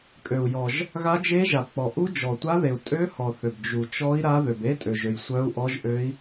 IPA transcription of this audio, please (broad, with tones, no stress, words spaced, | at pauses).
kʼø˨u̯jɔ˨ʒ | ɣa˦˥d͡ʒe˦˥ʒa˨bk͡pɔ˨ ʔu˦˥d͡ʒɔ˨tʷa˦˥ ðe˨u̯ tʼø˦˥hɔ˨ θø˨bd͡ʒu˨ t͡ʃɔ˦˥i̯ɾa˦˥ ðø˨be˦˥tʼø˨ʒø˨j sʷœ˦˥u̯ʔɔ˦˥ʒʔø˦˥i̯